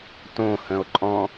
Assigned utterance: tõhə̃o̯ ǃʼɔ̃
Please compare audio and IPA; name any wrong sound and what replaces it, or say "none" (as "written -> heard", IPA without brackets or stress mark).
none